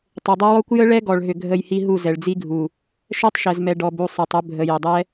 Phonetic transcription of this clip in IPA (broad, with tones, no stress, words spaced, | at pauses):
tˤʏ˨dˤə˦ wɔ˦kʷ jə˦ɭɛ˦ɡɔ˨ɭ ɦʏ˨ɡʱə˦˨jhi˦ ɦu˦˨zɛ˨ɭd͡zi˦ɡʱu˨ | ʃɛ˦tˤʃɛ˨zmɛ˨ ɖɔ˨bu˨ sˤi˨tˤʏ˦ bʱə˨ jʏ˨dˤɛ˦